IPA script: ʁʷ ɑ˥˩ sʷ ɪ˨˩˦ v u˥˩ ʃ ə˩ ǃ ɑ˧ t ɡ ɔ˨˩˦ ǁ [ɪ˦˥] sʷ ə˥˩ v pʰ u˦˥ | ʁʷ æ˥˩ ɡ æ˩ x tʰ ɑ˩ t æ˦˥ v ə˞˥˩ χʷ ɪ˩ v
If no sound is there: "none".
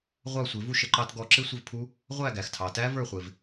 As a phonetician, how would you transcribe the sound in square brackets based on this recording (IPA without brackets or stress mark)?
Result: ɪ˦˥